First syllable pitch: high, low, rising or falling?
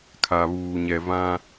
low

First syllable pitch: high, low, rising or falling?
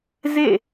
falling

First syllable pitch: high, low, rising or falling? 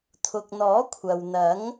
low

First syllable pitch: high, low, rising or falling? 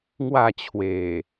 falling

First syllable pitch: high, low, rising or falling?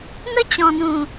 high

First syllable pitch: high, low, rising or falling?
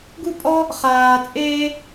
high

